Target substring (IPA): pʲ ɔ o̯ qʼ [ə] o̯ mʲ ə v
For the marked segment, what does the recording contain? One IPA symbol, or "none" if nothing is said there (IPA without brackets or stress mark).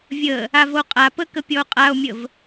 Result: a